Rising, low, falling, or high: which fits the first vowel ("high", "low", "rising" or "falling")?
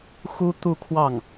high